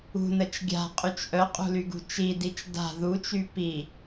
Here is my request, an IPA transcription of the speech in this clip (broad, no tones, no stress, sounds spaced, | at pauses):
ṳ n ə t͡ʃ ɡʲ a̤ qʼ y t͡ʃ ʔ œ qʼ ṳ l y ɡ ṳ t͡ʃ i d i t͡ʃ d a̤ ð u t͡ʃ y p i